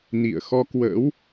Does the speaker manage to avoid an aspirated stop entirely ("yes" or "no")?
yes